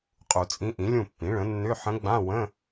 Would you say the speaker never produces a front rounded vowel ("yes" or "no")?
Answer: no